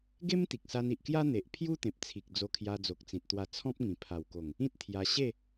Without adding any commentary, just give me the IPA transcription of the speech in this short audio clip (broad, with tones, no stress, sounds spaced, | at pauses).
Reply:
ɡ e˦ m t̪ i˨ k̚ s a˧ n i˨ ʔ k j a˦ n̪ e˨ ʔ pʰ j u˦ t̪ ẽ˨ p̚ t͡sʰ i˨ k̚ d͡z o˧ kʰ j a˧ d͡z o˨ k̚ t͡s ĩ˨ t̚ t̪ w a˧ t͡sʰ ɔ̃˦ p̚ ŋ ĩ˨˩ pʰ a˨˩ w k o˨˩ ŋ | ĩ˦ t̚ t̪ʰ j a˧ ɕ e˥˧